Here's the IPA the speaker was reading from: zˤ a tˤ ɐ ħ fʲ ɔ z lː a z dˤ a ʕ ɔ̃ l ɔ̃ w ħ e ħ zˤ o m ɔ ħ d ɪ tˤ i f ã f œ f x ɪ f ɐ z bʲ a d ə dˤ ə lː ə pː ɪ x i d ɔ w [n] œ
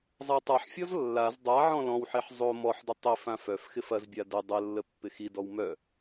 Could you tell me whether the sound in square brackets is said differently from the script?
yes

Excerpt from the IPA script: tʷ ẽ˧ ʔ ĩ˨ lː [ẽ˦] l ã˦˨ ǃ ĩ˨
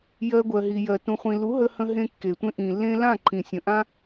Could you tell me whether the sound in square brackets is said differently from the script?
yes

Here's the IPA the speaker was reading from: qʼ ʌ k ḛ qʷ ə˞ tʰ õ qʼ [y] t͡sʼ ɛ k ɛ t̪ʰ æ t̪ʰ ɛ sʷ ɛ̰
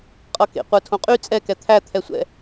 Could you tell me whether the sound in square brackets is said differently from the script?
no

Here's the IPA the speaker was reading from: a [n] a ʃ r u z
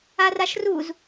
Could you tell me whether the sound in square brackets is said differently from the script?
yes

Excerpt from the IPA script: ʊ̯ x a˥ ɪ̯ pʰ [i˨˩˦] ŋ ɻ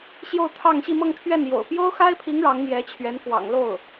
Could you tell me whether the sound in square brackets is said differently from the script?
yes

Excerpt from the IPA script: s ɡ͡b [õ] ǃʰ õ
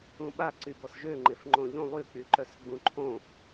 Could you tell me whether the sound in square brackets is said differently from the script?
yes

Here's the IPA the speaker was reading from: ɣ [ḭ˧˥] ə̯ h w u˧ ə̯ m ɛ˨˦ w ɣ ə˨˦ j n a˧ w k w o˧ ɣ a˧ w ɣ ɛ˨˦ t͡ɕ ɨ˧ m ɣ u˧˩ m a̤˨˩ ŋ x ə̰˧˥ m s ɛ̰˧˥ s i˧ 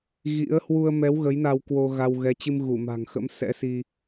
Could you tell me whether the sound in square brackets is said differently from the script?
no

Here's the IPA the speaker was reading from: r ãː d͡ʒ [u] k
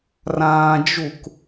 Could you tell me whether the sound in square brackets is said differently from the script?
no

